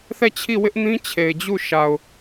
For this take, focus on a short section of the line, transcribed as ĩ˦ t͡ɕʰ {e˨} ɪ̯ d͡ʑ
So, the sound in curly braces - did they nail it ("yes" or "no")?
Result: yes